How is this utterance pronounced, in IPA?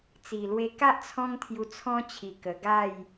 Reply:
t͡s i˨˩ l w e˧ k a˦ ʔ t͡sʰ ɔ̃˦ ŋ t̪ʰ j u˧ t͡sʰ ɔ̃˦ t͡ɕʰ i˧ k ə˧ ɡ a˥˧ j

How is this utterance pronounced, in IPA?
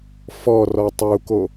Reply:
f ɔ r ɔ tˤ u k o

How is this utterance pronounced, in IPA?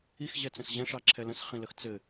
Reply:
i x ʑ ɛ t͡s ə̃ s ʑ ɛ̃ ʂ ɑ ǁʰ ɛ l ə̃ s χ ĩ l ə x t͡s ɘ

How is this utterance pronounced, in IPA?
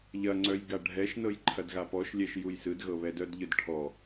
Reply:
ʎ ɐ ŋ͡ǀ œ j ɡ a ɖʱ ɛ ʃ n ɤ j ǃʰ ɐ d ɣ a p ɔ ʃ lʲ ɛ ʃ j u j s ɯ d ɣ ɤ β ɛ d œ d ʎ ɯ d ʈʰ ɔ

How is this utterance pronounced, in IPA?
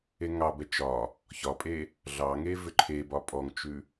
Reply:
e ŋ ɑ b ɛ t͡ʃ ɒ | ç ɒ pʼ e | ɮ ɑ ŋ e v ʏ ǃʰ e b ɒ pʼ ɔ ŋ t͡ʃ ʉ

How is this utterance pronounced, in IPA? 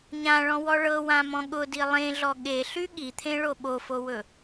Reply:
ɲ ã ɭ ɔ̃ w ɔ ɭ ɤ w ã m ɔ̃ ɠ ʊ d i lˠ ẽ ɮ ɔ ɠ e ɬ y ɠ i t̪ʰ ẽ ɭ o ɓ o f o w ɵ

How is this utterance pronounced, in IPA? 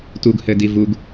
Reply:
t u ɡ h ɘː d i v u ɡ

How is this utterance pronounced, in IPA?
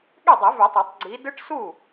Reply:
ɠ y˥˩ dˤ i˨˩˦ v y˨˩˦ tˤ ɑ˨˩˦ tˤ ɡ͡ǀ i˨˦ d ɯ˦˥ ʈ s u˥˩

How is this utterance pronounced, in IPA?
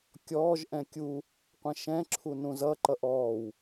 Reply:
kʲ ɔː ʒ ʔ ɛ̃ kʲ u | qʷ ɛ̃ ʃ ɛ̃ ǁʰ u n ũ z ʌ ǃ ʌ ʔ ɔː w

